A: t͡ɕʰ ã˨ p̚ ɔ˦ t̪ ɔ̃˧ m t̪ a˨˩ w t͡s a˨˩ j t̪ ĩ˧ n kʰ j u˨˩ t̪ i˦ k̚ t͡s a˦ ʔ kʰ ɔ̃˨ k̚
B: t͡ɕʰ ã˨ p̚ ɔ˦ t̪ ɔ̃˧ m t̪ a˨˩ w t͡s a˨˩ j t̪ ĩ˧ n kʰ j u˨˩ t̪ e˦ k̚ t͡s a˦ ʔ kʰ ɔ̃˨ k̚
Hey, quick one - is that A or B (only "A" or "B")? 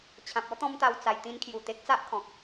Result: B